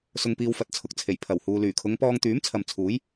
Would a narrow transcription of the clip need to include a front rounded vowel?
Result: yes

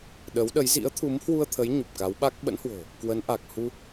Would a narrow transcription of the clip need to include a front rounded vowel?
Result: no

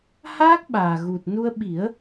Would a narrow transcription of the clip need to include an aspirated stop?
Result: no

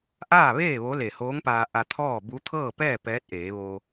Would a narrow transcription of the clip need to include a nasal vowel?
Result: no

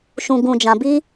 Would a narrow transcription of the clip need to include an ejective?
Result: no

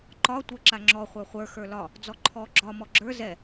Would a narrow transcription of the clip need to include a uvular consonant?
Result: yes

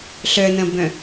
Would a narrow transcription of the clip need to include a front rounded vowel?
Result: yes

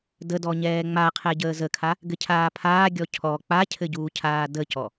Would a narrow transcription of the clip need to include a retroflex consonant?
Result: no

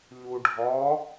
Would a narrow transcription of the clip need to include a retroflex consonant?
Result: yes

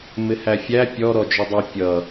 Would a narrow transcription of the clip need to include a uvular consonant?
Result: no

